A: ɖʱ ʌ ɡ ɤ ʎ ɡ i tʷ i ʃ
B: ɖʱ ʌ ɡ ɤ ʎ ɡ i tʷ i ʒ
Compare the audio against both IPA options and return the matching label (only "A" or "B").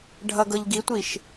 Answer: A